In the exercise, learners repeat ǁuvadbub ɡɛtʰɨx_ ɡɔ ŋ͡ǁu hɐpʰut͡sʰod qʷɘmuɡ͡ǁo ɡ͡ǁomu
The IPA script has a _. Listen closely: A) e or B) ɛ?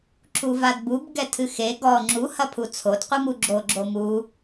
A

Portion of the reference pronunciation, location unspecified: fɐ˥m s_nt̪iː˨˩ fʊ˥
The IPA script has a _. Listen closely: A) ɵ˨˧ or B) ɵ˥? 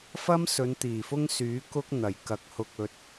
A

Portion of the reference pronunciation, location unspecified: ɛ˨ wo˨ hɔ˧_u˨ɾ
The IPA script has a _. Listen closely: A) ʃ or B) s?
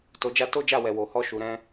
A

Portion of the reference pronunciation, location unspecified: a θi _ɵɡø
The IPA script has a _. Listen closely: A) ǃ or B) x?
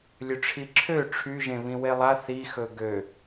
B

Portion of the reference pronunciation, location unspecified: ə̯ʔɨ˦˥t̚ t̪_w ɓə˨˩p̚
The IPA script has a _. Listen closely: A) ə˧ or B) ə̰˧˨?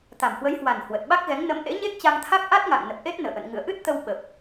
A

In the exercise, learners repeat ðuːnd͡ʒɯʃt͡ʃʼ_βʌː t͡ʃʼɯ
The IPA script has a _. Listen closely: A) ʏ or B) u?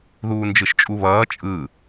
B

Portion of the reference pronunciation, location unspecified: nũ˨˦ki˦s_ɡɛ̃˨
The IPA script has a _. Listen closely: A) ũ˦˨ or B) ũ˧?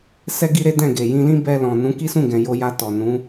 A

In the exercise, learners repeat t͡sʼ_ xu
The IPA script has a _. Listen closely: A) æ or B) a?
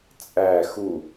A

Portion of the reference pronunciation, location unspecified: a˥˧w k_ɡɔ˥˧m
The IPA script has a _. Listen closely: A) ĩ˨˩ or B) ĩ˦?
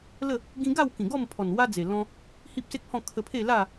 A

